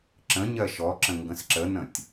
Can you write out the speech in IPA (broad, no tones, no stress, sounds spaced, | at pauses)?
ǁ ə̃ ɲ ɜ ʃ ɔ ǁ ə̃ ŋ ɡ ə̃ s ǁ ə n ə̃ tʲ